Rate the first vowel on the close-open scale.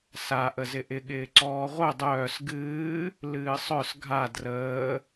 open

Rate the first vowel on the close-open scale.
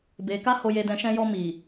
mid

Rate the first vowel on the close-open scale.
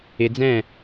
close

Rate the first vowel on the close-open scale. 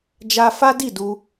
open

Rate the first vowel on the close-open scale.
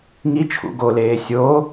close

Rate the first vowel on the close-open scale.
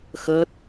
mid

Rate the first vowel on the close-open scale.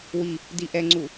close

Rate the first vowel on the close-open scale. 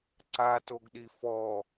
open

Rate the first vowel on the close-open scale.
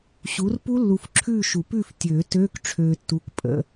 close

